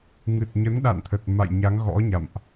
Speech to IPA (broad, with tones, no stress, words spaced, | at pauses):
ŋɨ˨˩t̚ɲə˨˦nɗa̰˧˨nt̪ʰə˨˩t̚ ma̰˧˨j ɲa˨˦ŋɣɔ̰˧˥ɲa̰˧˨mʔ